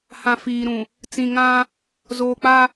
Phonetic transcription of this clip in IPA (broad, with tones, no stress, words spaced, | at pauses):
hã˨fiː˨ɾũ˨ | t͡sĩ˨ŋã˦ | zoː˨k͡pa˦